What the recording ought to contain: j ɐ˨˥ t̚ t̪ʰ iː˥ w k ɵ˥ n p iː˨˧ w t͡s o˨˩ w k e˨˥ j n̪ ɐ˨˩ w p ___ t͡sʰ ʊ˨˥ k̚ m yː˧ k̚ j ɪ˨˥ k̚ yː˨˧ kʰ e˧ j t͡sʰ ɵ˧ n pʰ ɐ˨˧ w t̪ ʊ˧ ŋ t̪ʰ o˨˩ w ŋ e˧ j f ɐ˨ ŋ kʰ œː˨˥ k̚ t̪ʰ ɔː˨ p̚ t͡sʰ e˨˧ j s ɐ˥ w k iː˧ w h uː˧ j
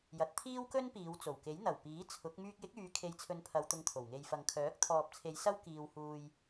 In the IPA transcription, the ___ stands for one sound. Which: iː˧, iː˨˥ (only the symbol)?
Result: iː˨˥